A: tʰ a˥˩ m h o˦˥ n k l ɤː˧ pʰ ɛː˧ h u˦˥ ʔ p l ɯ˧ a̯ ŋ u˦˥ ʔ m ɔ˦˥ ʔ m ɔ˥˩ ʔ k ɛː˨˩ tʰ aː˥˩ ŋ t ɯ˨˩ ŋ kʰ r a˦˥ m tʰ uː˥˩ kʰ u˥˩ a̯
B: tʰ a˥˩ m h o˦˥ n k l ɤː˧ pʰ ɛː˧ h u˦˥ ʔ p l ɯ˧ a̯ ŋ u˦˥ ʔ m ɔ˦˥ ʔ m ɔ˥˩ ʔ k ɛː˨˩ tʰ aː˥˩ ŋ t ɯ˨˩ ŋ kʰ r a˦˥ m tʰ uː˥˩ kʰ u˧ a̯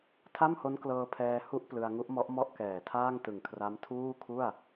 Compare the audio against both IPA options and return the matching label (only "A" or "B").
A